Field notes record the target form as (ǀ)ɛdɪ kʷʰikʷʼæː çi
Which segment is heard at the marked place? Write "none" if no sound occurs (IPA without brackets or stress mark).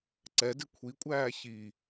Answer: ǀ